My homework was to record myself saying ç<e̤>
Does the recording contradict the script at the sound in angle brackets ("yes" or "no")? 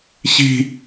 yes